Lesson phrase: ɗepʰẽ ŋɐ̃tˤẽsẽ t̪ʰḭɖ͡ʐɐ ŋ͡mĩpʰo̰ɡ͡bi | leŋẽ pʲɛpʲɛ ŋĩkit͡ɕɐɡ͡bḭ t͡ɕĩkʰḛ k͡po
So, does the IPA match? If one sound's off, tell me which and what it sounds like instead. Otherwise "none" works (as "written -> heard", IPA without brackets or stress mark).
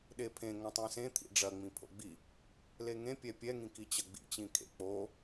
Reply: none